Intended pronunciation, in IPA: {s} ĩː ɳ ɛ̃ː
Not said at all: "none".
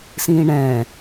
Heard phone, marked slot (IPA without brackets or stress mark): s